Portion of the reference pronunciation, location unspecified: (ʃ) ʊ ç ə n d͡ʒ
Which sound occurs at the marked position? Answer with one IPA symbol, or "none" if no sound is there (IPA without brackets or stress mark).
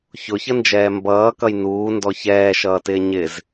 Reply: ç